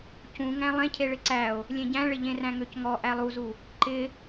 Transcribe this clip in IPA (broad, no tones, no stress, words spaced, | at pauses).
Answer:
cũŋæ̃ lˠẽcʰeɭɪ ǀæo̯ | lʲẽɟæ̃ɭɪ ʎẽræ̃ŋøcŋɔ ʔælˠuzu | ǃɪ